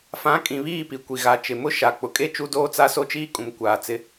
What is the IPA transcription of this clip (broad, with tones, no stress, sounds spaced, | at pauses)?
f ã˨˦ kʼ ĩ˨ β iː˦˨ p i˨ kʷ i˨ ɣ a˨ t͡ʃ ɪ˨ m ʊ˦ ʃ a˨ k͡p ʊ˨ kʼ e˦ t͡ʃ u˦ d oː˦ t͡s a˦ s o˦ t͡ʃ iː˦ kʼ ũ˨ m kʷ aː˨ t͡s ɪ˦